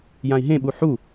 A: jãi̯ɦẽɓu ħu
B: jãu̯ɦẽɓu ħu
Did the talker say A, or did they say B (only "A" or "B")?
A